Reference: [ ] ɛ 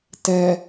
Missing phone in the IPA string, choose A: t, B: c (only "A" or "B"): A